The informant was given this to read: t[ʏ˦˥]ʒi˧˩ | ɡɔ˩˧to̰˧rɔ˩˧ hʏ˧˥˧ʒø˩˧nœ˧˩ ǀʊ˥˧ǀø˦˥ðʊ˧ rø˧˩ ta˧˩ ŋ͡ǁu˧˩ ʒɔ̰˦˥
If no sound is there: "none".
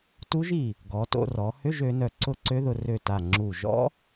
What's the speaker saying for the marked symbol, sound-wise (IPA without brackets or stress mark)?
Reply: u˦˥